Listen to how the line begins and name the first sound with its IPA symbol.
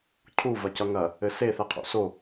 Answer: cʰ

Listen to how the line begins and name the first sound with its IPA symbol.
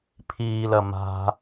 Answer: pʰ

